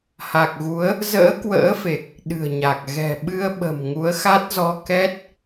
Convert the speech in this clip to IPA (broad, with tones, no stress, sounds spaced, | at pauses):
h a˨˩ k̚ ɣ u˨˦ ə̯ | z ə̰ː˧˥ k w ə̰ː˧˥ f e˨˩ k̚ | ɗ ɨ̤˨˩ ə̯ ɲ a˨˩ k̚ ɣ ɛ̤˨˩ ɓ ɨ˧ ə̯ ɓ ə̤˨˩ m ŋ u˨˦ ə̯ x a˦˥ t̚ z ɔ˧ k ɛ˦˥ t̚